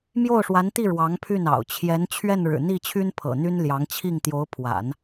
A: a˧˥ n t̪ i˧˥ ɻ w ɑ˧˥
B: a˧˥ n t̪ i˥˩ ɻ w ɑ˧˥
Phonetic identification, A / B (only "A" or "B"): B